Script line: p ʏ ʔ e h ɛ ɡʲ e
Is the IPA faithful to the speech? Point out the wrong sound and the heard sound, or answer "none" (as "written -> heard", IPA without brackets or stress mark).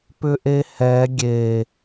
none